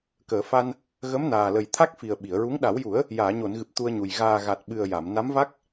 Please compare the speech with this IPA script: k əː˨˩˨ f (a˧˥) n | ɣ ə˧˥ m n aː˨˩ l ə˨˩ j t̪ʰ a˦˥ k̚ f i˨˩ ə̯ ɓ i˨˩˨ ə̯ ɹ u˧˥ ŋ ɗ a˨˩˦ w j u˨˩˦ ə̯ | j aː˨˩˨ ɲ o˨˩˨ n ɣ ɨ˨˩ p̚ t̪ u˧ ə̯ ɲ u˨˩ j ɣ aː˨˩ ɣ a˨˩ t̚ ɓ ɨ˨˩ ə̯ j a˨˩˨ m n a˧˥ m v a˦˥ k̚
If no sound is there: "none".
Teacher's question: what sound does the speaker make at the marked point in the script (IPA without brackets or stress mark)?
a˧